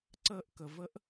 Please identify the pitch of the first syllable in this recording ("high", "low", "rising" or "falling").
high